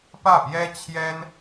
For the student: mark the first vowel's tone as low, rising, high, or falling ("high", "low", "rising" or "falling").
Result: falling